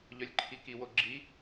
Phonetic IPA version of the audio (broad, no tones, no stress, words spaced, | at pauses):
ʎœlʲǃʰiki woɡ͡ǁi